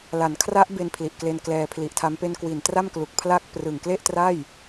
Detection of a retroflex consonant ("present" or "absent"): absent